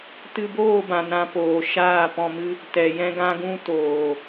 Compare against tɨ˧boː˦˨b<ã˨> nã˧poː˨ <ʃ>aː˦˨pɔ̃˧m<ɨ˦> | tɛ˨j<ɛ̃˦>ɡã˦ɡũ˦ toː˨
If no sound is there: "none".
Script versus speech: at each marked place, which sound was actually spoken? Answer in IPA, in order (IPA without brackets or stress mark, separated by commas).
ã˨, ʃ, ɨ˦, ɛ̃˦